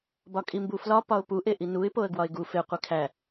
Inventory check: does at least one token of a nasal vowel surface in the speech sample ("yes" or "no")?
no